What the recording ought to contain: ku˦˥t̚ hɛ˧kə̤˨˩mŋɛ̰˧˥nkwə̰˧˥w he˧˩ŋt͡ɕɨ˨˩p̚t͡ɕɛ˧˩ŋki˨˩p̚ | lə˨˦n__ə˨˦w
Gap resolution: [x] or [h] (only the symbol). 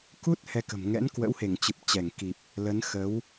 x